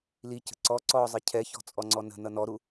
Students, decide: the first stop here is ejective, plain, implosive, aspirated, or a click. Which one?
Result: plain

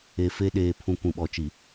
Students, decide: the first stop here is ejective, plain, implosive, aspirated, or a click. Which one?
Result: implosive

